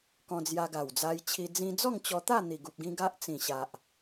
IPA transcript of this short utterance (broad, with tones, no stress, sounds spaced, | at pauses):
k ɔ̃˧ d͡z j a˧ ɡ a˨˩ w d͡z a˧ j t͡ɕʰ i˧ d͡z ĩ˧ d͡z ɔ˥˧ ŋ t͡ɕ ɔ˧ t̪ a˥˧ n̪ i˨˩ ɡ u˨ p̚ ɡ ĩ˧ ɡ a˦ ʔ t͡s ĩ˨˩ ɕ a˨ ʔ